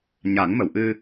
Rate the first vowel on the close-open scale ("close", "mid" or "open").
open